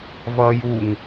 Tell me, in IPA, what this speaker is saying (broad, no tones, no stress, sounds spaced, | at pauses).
v ʌː j u ŋ